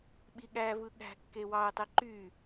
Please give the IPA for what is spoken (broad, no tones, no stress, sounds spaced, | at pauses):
ɓ i ɠ æ v ɯ ɠ æ̤ kː e w ɑ ə̯ tˤ e ǃ y